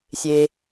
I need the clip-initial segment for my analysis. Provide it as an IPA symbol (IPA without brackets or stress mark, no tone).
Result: sʲ